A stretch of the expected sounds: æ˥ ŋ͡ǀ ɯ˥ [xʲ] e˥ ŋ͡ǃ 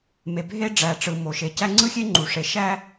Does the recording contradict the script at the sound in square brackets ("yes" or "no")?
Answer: no